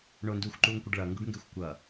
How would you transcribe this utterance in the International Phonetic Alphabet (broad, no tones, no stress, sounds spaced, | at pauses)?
ɳ o n d uː xʷ ǃ uː ŋ kʷ ʌ ɖ ɭ ʌ ŋ ɡ u ɖ ŋ ɡ e xʷ kʷ ʌ